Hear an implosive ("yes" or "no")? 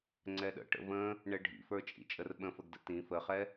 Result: yes